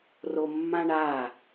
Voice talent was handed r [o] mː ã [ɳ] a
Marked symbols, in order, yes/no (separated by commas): yes, yes